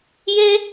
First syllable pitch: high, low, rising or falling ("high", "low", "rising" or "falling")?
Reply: high